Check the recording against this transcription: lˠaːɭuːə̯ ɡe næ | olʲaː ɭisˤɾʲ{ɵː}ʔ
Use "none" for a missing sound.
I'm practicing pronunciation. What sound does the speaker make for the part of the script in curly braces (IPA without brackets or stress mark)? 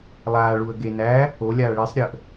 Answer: əː